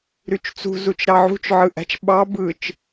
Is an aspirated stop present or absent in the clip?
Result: absent